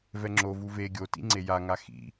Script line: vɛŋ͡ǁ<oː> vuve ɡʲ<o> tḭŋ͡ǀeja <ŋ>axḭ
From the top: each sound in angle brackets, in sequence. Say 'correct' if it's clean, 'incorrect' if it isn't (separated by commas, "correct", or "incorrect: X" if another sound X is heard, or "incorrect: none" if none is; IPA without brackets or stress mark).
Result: incorrect: o, correct, correct